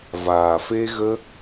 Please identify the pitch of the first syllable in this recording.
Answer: low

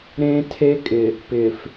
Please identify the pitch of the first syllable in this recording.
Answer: high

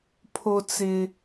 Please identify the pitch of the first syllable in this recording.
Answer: high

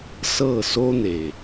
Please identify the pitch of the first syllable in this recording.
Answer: falling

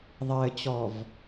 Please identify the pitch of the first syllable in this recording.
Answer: low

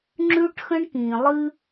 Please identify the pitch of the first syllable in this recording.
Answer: high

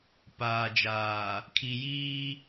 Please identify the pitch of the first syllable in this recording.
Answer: low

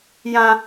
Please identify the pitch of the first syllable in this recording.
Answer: high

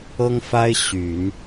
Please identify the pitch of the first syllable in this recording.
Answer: high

